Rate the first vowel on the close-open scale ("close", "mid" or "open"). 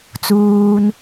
close